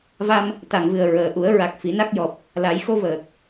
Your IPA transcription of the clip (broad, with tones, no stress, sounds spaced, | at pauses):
v a˧ m | t̪ a˨˩˨ ŋ v ɨ˨˩ ə̯ ɹ əː˨˩ ʔ u˨˩˦ ə̯ ɹ a˨˩ k̚ f i˨˩˦ n a˦˥ k̚ j ɔ˨˩ p̚ | l a˨˩˦ j x o˧ v əː˨˩ k̚